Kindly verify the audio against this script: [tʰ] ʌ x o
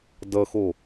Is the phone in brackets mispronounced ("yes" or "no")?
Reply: yes